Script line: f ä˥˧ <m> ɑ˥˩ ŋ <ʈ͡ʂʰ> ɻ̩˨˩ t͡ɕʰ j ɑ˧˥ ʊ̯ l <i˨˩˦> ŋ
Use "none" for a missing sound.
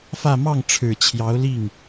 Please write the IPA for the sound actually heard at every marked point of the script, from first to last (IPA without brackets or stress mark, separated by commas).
m, ʈ͡ʂʰ, i˥˩